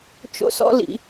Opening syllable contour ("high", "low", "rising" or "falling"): high